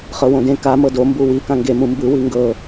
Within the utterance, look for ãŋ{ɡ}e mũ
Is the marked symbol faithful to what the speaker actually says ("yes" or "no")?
yes